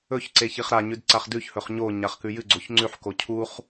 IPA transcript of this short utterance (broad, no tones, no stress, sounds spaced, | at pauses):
ɵ ç ǀ e ç i χ ɾ a ɲ ʉ d ǀ a χ d ʉ ç h ɵ χ ɲ o ɲ a χ k ʉ j ɨ ɡ͡ǀ o ç ŋ͡ǀ ʉ ħ k o cʰ u χ